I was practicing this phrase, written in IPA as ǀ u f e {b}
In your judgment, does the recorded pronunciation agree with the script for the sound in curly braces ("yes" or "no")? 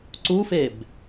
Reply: yes